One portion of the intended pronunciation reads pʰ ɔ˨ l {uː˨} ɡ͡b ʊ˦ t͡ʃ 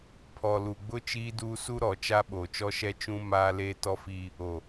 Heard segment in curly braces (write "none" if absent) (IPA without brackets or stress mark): u˨